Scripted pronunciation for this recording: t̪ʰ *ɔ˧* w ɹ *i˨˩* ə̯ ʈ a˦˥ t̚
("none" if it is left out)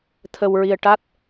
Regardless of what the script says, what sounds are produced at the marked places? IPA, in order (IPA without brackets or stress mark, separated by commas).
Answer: ə˧, i˧